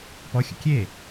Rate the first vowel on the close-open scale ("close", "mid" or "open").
mid